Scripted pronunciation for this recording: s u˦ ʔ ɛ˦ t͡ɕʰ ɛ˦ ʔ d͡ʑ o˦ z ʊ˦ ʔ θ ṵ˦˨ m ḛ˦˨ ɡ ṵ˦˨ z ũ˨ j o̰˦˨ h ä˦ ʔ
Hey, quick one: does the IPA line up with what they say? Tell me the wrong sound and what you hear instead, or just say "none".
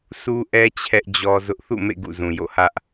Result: o˦ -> ɔ˦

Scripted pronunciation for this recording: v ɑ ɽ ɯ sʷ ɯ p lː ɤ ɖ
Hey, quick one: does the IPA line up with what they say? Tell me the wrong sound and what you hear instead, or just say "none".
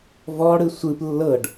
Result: ɑ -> ɔ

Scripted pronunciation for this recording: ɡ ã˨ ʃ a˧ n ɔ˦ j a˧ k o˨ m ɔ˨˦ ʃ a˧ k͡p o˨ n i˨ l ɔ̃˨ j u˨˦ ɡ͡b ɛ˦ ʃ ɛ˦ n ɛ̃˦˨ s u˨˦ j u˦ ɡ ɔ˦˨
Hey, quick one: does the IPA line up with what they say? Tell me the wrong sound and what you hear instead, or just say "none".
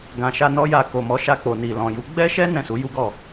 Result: none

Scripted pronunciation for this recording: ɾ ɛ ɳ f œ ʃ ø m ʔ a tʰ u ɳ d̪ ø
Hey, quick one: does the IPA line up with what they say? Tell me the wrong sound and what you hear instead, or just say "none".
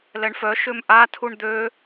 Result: ɾ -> l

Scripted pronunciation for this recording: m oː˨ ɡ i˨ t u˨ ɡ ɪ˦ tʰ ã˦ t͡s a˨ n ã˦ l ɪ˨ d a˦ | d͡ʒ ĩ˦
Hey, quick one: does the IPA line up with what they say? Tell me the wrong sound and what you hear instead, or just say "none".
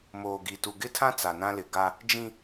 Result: d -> ɡ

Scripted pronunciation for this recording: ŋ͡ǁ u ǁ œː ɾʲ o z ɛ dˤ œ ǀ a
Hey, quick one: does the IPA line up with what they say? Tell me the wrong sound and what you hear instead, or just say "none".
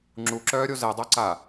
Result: none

